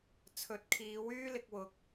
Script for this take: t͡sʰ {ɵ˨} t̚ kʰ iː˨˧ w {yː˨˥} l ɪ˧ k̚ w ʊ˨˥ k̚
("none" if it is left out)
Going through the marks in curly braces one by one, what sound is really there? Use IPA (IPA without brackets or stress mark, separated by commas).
ɵ˨˥, yː˥